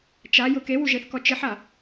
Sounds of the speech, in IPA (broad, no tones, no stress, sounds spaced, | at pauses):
t͡ʃ a j ʊ k e w u ʒ e θ k ɔ t͡ʃ ɪ ħ a